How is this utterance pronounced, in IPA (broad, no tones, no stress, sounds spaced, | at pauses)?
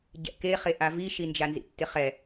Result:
ɟ ɛ̰ k e χ e ʔ a v i ʃ i n d͡ʒ a n z ḭ tː ɪ χ ɛ